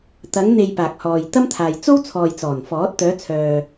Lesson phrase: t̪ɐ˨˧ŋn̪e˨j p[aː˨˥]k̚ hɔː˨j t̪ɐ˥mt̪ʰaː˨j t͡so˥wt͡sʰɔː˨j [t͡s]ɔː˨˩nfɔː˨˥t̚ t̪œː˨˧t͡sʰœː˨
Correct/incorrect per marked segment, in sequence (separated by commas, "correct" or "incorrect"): incorrect, correct